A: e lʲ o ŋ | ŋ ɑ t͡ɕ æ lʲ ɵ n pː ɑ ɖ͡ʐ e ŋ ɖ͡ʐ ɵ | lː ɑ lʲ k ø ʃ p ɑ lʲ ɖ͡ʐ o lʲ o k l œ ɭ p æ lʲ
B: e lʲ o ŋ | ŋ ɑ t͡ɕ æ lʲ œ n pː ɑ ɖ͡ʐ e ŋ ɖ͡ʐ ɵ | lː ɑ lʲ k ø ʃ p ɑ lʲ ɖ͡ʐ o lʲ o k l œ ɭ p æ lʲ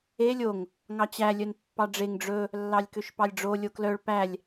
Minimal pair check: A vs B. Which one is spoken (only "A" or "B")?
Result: B